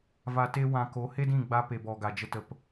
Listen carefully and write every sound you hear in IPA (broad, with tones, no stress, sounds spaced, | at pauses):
v a˧ t e˦ w ã˧ k o˨˦ h e˦ d ĩ˦˨ ɡ͡b a˦ p e˨ b ɔ˨ ɡ a˨ d͡ʒ ə˧ t ə˨ p